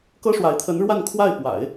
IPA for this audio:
kɤ˥ʂwa˧˥ɪ̯ t̪ʰə˧˥n ɻwa˥˧nkʰwa˥˩ɪ̯ pwa̰˨˩˦ɪ̯

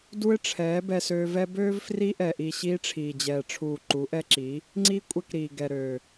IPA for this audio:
du˧ɪ̯ ʈ͡ʂʰɛː˨˦ bɛ˧søː˧vɛ˦ bøː˦v fri˧ʔɛ˨ʔi˨ ɕiː˧ʈ͡ʂʰiː˨d͡ʑɛː˨ʈ͡ʂʰuː˨ ǃu˨˦ʔɛ˧ǁi˨˦ | ŋ͡ǀiː˦kʷʼɛ˧kɾiː˨ ɡɛ˨ɾøː˨

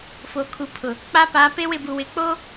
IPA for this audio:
fo˨kʰu˨˦pʰʊ˨ | k͡pa˦ paː˨˦pe˦wɪ˦˨bu˨ wɪ˨k͡po˦

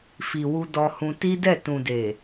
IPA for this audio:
fi˨wu˧ dɔ˧hũ˧ ti˦dɛ˦˨ tũ˨de˨

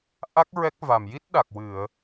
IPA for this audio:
ʔa˦˥k̚ ɹɛ˦˥k̚va˨˩m ji˦˥t̚ɗa˨˩k̚wɨ˨˩˨ə̯

